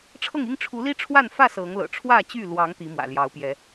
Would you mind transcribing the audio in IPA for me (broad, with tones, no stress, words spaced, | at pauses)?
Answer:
ʈ͡ʂʰɤ˥˨ŋi˦ŋ ʈ͡ʂʰu˨˦li˦ʈ͡ʂʰwa˥˨nfä˥˨ sɤ˨˦ŋlɤ̰˨˩ ʈ͡ʂʰwä˥˨t͡ɕy˥˨lwɑ˨˦ŋ t̪i˨˦mwä̰˨˩ljɑ˨˦ʊ̯pjɛ˨˦